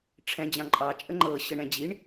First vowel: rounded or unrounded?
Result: unrounded